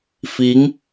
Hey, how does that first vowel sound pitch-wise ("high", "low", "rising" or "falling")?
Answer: rising